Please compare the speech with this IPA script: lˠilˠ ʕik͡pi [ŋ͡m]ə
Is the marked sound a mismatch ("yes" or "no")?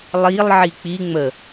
no